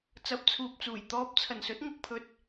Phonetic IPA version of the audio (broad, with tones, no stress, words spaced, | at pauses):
t͡sɐ˨˥p̚t͡sʰuː˨p̚t͡suː˨˩j t̪ɔː˧p̚ t͡sʰɐ˨˩nsɵ˨˥t̚ ŋɐ˨k̚pʰɵ˨t̚